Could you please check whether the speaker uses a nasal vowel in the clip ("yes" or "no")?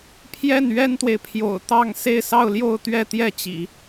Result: no